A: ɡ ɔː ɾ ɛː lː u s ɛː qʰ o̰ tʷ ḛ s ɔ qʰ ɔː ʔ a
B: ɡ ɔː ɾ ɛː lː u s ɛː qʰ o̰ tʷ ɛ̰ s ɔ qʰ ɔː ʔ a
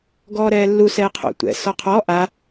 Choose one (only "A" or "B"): B